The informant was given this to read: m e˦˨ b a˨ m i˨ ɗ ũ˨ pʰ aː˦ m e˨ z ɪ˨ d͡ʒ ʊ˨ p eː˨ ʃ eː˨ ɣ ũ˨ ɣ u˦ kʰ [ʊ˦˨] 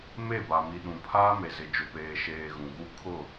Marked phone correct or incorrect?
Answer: correct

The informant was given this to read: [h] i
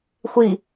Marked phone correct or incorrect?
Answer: incorrect: xʷ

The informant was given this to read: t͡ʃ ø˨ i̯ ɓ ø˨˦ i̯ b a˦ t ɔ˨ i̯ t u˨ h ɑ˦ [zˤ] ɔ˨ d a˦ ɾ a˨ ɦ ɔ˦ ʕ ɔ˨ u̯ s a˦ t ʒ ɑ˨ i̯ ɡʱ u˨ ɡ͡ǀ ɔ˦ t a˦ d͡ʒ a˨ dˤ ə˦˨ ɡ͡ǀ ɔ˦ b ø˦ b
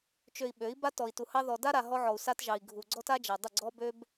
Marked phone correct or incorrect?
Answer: incorrect: ð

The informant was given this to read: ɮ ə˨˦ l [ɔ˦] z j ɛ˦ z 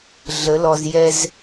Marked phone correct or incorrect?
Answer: incorrect: ɔ˨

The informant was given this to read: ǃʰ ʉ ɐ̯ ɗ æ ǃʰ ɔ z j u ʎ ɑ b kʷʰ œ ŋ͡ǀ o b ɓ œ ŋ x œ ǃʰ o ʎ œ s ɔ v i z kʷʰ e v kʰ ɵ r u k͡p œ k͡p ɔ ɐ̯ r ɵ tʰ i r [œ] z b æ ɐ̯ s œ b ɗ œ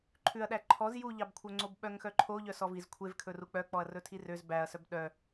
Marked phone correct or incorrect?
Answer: incorrect: ø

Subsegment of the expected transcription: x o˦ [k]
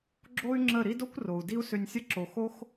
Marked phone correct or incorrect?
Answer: incorrect: x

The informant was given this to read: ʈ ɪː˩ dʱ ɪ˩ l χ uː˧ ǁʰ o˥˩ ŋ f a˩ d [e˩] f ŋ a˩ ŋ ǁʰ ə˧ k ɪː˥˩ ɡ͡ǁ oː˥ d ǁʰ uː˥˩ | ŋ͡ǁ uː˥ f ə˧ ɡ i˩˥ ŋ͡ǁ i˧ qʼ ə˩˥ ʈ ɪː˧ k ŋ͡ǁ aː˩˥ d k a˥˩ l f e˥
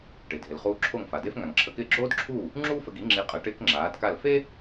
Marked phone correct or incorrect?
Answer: incorrect: e˥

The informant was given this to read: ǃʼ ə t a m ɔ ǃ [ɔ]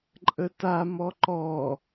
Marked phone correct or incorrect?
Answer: correct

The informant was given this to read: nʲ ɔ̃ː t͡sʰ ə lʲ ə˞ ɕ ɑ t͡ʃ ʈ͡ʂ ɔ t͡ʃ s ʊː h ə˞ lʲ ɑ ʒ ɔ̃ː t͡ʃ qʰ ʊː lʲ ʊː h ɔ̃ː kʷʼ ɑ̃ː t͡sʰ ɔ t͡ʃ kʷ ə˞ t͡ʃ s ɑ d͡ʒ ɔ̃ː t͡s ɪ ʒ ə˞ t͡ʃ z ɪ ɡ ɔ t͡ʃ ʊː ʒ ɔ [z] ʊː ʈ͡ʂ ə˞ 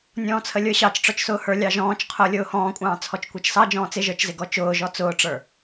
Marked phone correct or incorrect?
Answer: incorrect: t͡s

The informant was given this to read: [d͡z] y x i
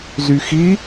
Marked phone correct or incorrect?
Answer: incorrect: z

